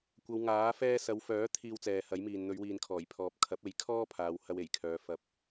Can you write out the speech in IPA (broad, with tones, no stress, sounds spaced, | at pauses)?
kʷ ɐ˨˧ w ŋ aː˨˥ f ɛː˧ s ɐ˨˧ w f œː˨˥ t̪ʰ iː˧ w t͡s ɛː˨ h ɐ˨˥ j m iː˨ n n̪ ɵ˨˧ ɥ w iː˨ n kʰ ɔː˨˩ j pʰ ɔː˨ p̚ kʰ ɐ˨˥ p̚ e˨˥ j kʰ ɔː˥ pʰ aː˨˧ w h ɐ˧ w e˨˩ j kʰ œː˨˧ f ɐ˧ p̚